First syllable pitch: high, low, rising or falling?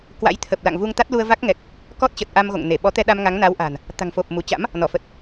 rising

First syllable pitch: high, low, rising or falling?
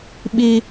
high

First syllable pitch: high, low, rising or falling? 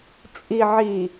low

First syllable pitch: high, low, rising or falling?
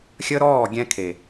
high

